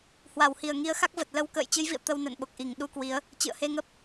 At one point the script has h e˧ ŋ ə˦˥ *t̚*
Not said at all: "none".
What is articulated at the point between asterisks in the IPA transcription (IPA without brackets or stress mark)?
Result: p̚